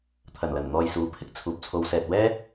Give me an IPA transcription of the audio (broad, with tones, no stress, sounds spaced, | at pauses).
t̪ʰ ɐ˨˩ n l ɐ˨˩ n n̪ ɔː˨ j s uː˨˥ pʰ ɪ˥ k̚ t͡sʰ uː˨ p̚ t͡sʰ o˨˧ w s ɛː˨ t̚ w ɛː˥